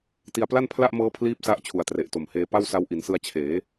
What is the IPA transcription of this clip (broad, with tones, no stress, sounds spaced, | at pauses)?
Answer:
t i˧ a̯ p l a˥˩ n pʰ l a˥˩ ʔ m ɤː˦˥ pʰ l iː˥˩ p̚ s a˦˥ ʔ t͡ɕʰ u˨˩ a̯ t r e˨˩ ʔ t o˨˩ m h eː˧ p a˥˩ w s a˦˥ w ʔ i˩˦ n s ɯ˧ a̯ t͡ɕʰ eː˩˦